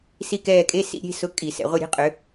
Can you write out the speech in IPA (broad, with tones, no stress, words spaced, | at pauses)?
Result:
si˦˨kɛː˦˨kʼe˧˥˧ sḭ˦˥ɾʲe̤˧˥˧sʊ˧˥˧ kʼi˧˩˧sɛ̰˧˩˧ʁʷe˦˨ɾʲe̤˧˥˧ qʼʏ˨˦